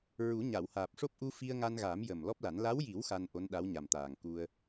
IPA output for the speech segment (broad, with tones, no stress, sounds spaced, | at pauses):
ɹ u˨˩˦ ɲ a˨˩˨ w h aː˨˩ p̚ ʂ o˦˥ p̚ ʔ u˧ f i˧ ə̯ ŋ a˧ n ɣ a˨˩˦ m j ə˨˩ m l ɔ˦˥ p̚ l a˨˩˦ n l a˧˥ w j i˨˩˦ w x a˧ n ʔ o˧˥ n ɗ a˧˥ w ɲ a˨˩ m t̪ aː˨˩ ŋ k u˧ ə̯